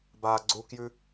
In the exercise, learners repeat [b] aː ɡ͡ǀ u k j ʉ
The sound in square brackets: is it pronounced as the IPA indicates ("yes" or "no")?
yes